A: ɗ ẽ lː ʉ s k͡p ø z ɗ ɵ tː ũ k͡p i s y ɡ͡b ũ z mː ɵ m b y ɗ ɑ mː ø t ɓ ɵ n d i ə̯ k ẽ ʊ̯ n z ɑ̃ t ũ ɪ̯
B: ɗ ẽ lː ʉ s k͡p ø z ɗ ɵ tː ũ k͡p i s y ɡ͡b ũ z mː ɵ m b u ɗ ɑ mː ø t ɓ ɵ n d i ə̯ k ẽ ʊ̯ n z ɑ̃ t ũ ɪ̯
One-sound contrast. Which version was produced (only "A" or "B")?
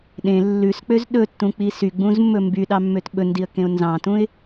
A